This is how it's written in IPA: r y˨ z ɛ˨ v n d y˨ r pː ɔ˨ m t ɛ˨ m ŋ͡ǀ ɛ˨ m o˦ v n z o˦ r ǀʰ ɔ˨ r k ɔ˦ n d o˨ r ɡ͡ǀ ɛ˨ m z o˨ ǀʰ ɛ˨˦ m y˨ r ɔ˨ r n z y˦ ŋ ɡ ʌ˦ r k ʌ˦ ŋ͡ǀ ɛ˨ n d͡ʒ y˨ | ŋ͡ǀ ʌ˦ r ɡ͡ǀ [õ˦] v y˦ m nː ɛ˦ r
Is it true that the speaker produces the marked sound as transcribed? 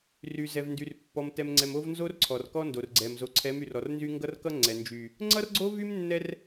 no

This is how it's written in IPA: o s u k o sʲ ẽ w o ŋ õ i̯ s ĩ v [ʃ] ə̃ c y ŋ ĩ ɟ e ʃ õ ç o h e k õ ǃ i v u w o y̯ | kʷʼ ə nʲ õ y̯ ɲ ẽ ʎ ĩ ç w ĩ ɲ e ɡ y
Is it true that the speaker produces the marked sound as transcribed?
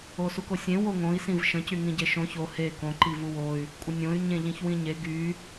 yes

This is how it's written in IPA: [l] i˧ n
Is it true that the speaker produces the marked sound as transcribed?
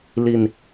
yes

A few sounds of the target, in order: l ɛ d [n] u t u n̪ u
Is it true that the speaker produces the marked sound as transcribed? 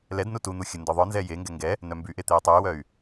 yes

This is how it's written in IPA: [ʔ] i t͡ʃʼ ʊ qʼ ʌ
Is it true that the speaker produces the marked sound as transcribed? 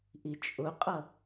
yes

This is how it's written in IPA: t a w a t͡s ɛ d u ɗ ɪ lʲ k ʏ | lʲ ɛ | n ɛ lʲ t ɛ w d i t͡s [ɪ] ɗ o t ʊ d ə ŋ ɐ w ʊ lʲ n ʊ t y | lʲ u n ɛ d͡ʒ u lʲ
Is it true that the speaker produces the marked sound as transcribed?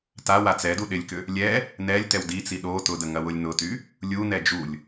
no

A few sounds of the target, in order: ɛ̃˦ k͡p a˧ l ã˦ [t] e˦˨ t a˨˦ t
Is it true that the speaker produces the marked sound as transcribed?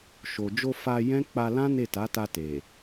no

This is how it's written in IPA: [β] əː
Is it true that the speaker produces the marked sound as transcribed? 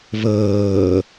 yes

